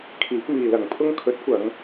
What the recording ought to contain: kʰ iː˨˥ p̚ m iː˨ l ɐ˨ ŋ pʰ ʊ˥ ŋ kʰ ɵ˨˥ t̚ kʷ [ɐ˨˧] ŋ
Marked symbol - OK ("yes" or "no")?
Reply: yes